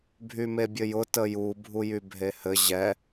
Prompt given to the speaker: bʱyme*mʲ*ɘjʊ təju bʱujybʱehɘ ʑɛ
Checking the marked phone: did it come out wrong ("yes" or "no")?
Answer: yes